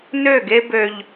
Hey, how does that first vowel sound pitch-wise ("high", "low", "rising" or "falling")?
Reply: falling